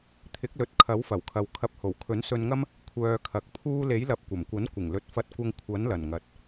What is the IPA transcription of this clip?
t̪ʰ ɪ˨˥ k̚ l ɵ˨ t̚ kʰ ɐ˨˥ w f ɐ˨˩ w kʰ ɐ˨ w kʰ ɐ˧ p̚ h o˨˩ w kʰ ɵ˨˥ n s ɵ˧ n ŋ ɐ˥ m | kʷʰ œː˧ kʰ ɐ˨˥ k̚ pʰ uː˥ l e˨˥ j l ɐ˨˥ p̚ kʷ ɐ˨˩ m kʷ ɐ˨˥ n kʷ ɪ˨˩ ŋ l ɵ˨ t̚ f ɐ˧ t̚ kʷ ɐ˧ ŋ kʷʰ ɐ˨˥ n l ɐ˨˩ n ŋ ɐ˨ t̚

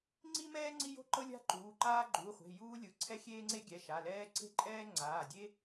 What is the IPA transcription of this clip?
ŋ͡ǀ i˥ m ɛː˥ ŋ͡ǀ i˥ j o̤˥ ǃ ɤ˥ lʲ a̤˥ ǃ uː˩˧˩ ǃ aː˥ ɡ͡ǃ uː˩˧˩ χʷ e̤˩˧˩ j uː˥ lʲ ɯ˩˧˩ ǀʰ ɛ˥ xʲ eː˥ ŋ͡ǀ e˥ ɡʲ ɛ˩˧˩ ʃ a˩˧˩ l ɛː˥ ǀ e̤˥ ǃʼ ɛː˥ ŋ͡ǀ aː˩˧˩ dʲ e˥

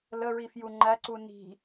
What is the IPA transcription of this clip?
l ə ɹ i f j u ŋ͡ǃ æ ǀ u n i̤

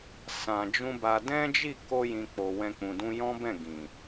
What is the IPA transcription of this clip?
s ã˨ d͡ʒ ũ˧ b a˧ d ɛ̃˦ d͡ʒ i˦˨ k o˧ j ĩ˨ k͡p o˨ w ɛ̃˧ k͡p ũ˨ d ũ˧ j ɔ̃˦ b ɛ̃˦˨ ɡ ĩ˨

